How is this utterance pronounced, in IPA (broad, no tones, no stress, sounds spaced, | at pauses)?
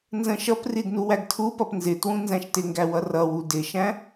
n z ə̃ ʃ ʌ p r i d n u w æ ɡ tʰ u p ʌ p n z ɪ t w ũ n z æ̃ ʃ t ɪ ŋ ɡ æ w ʌ r ʌ w u d ɪ ʃ æ̃